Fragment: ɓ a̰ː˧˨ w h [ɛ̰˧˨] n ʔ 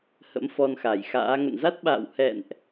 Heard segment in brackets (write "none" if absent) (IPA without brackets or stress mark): ɛ̰˧˨